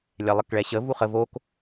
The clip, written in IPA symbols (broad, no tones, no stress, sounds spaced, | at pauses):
lʲ ɛ lˠ ə k ɭ ɛ ɕ ə v u χ ə v o k